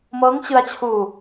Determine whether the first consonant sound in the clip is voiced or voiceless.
voiced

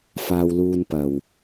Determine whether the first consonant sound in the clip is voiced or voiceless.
voiceless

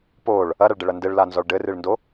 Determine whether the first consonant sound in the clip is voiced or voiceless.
voiceless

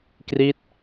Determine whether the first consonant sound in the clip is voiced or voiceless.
voiceless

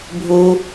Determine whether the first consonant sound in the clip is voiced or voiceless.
voiced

